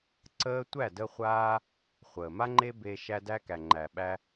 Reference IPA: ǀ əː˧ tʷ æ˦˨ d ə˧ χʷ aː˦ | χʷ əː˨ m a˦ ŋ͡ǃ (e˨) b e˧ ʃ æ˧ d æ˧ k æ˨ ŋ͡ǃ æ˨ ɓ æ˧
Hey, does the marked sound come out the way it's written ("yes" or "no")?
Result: no